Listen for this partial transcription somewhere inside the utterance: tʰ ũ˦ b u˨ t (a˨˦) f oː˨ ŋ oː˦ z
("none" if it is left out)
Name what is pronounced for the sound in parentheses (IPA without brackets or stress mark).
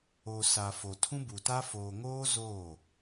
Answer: a˦